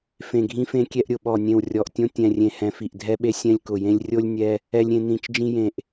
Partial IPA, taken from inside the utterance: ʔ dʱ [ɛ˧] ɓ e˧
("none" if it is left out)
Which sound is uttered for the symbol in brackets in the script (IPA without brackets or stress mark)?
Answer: ɛ˧